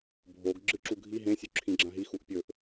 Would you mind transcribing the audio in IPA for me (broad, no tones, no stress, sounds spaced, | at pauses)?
bʱ o ɡ ɡ͡ǁ ɨ ǁ u ɡʱ i ɦ ẽ sʲ u ǁʰ ĩ ɡ͡ǁ ã ɦ i x u ʔ pʲ ɵ ʔ